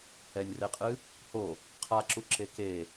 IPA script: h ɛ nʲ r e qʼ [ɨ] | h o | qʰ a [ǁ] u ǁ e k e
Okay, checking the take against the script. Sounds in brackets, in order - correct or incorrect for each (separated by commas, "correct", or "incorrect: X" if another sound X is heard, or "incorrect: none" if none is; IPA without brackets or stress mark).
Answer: correct, correct